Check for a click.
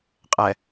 absent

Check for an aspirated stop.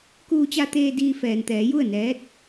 absent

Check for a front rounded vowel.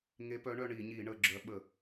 present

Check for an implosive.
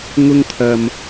absent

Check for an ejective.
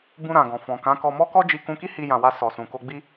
absent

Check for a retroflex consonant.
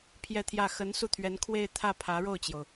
present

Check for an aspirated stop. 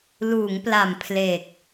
present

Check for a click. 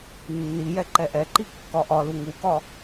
present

